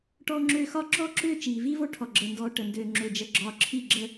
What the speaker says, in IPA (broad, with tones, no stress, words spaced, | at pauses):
ʈɔː˦ŋ͡ǁøː˦ xɒ˦ ǁɔː˦ǁøː˦˨ t͡ʃiː˨vi˦vo˦ ʈʰɔ˨ɡ͡ǁəː˨ndɔː˨ ʈə˨ndøː˨ ŋ͡ǁø˨d͡ʒə˨ ɡ͡ǁɒː˨ǁʰi˦˨ɡ͡ǁə˦